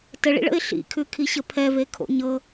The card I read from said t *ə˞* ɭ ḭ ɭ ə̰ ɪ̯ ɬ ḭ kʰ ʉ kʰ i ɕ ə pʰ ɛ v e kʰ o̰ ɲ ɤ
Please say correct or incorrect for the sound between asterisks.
incorrect